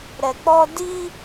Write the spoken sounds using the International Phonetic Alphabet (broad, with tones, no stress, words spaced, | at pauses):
ɾɛ˨k͡pɔ˧ di˦